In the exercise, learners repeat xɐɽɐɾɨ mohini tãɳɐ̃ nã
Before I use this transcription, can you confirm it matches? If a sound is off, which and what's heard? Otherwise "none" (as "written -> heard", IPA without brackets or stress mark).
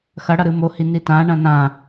none